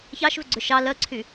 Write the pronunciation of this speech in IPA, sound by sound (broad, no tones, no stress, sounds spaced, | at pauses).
ç ɑ ʃ v ʏ ɡ͡ǀ ʏ ʃ ɑ l ɜ ǀʰ y